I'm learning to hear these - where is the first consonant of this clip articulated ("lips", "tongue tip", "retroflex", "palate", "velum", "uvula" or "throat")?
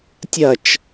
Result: tongue tip